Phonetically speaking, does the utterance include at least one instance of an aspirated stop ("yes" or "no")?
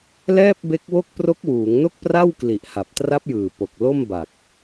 no